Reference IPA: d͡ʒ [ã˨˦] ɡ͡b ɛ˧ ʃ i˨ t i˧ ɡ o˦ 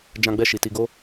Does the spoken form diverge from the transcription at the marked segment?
yes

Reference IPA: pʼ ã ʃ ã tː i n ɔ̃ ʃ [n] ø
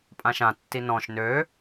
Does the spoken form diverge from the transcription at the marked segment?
no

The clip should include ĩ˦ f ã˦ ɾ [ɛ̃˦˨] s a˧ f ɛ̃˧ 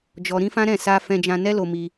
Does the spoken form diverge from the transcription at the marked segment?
no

